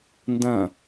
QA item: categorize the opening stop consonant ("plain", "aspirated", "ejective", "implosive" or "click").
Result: plain